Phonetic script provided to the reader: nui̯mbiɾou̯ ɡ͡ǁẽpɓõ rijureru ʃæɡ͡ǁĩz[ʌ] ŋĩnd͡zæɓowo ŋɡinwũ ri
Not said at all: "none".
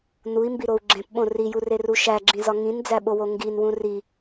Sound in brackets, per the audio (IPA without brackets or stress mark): ɒ